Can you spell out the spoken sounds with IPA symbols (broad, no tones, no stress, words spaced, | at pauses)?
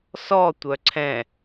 sɔtʷœ ǀʰɛ̃